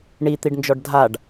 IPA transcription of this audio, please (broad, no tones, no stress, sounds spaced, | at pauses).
ɳ i t̪ i ɖ n d͡ʒ ɔ ɖ dʱ a ɖ